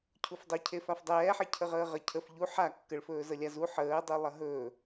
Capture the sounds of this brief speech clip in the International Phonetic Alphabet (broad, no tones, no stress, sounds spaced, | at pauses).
cʰ u f dˤ ɵ cʰ e f a f dˤ ɛː ħ e cʰ ə ʁ əː ʁ ə cʰ ə f ʎ u ħ a kː ə ɭ f ɵː z ə lʲ a z u ħ əː dˤ u lˠ ɐ ɦ ɵː